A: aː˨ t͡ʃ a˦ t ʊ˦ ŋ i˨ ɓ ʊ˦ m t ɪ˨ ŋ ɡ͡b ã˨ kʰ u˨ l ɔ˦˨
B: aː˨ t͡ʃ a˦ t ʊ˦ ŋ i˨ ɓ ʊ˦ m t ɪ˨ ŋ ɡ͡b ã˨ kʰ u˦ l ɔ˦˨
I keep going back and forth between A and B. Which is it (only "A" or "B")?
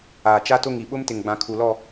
A